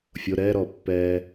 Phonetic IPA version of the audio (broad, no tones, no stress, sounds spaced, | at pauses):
fʲ o ɾ ɛː ɾ ɔː pː ɛː